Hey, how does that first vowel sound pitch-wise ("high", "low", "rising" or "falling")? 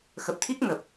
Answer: low